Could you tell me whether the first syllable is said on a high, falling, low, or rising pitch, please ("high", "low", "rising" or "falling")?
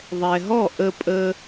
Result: low